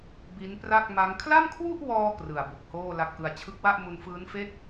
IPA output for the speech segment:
b i˦˥ n p r a˥˩ k̚ m a˦˥ ŋ kʰ l a˥˩ m kʰ w u˥˩ ʔ w ɔː˧ k r ɯ˨˩ a̯ b u˨˩ k̚ h oː˥˩ l a˦˥ k̚ ʔ ɯ˧ a̯ t͡ɕʰ ɯ˦˥ k̚ w a˥˩ ʔ m u˧ n f ɯː˦˥ n f e˥˩ k̚

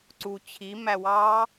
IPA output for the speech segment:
ǀ u t͡ɕʰ i m æ w ɑ

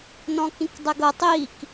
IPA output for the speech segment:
n ɔ̃ k ĩ k dˤ ɛ ɡ ɤ tˤ iː k

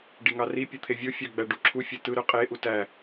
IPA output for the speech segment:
ɖ i ŋ ɑ r i pʲ ɯ t̪ʰ e vʲ o fʲ ɑ ɡ͡b æ ɖ u ǁʰ u fʲ e t ɯ ɾ ø qʼ e ʔ u t æ

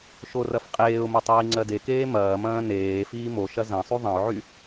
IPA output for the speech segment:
ʃ o r ɐ f qʼ eː ʊ̯ m ɐ tˤ iː ŋ͡ǀ ɜ d e k eː m ɐː m ɐ̃ː n eː f iː m o ʃ ɐ z ɐ̃ sˤ y ðˤ ɐ̃ ʊ̯ ʕ y

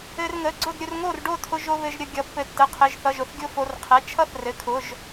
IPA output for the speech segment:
ɘ˧ r ŋ ə˩˧˩ ɡ͡ǀ ʊ˥˨ d ɾʲ ʊ˧ r ŋ o˥˨ r ɖ o˥˨ tʰ ʊ˧ ʒ o˧ β ɘ˧ ʒ ɾʲ ə˥˨ ɡʲ ʌ˧ pː ɘ˧ tː ə˩˧˩ qʰ ɘ˩˧˩ ʒ θ ʌ˩˧˩ ʒ ʊ˧ θ ɡʲ ʊ˥˨ f o˧ r qʰ ɛ˩˧˩ t͡ʃʰ ʌ˥˨ θ r ɘ˩˧˩ kʰ ʊ˩˧˩ ʒ

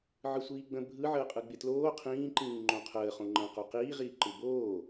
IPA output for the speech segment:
ʕ ɯ sʷ iː ɡ͡b ə̃ bʱ ɯ ʕ əː qʼ ɯ ɡ͡b ɪ t l oː qʰ ĩː ǃ ĩː ŋ͡ǃ õ qʰ əː χ õ ŋ͡ǃ ə̃ q o q iː ʁ iː ǃ ɯ b oː

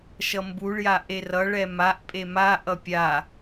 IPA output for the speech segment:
ʃ ʌ m b u ɭ j a ʔ e r ʌ ɭ ɛ m a ʔ pʼ e m a ʔ ʌ pʲ a

